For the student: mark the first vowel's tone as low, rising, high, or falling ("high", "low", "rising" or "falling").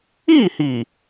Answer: falling